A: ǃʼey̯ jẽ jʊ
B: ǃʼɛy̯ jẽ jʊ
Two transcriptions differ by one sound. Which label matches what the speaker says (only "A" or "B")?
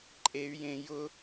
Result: A